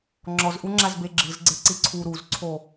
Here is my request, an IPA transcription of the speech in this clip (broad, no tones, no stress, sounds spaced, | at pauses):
ŋ͡ǁ ɔ z ʔ u ŋ͡ǁ a z b e ɡ͡ǁ ɯ z ɡ͡ǀ e ǀ i ǀʰ u ɾ u z ǀʰ o